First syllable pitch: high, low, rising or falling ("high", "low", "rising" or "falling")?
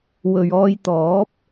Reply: low